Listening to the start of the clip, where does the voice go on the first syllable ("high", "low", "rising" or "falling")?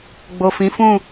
low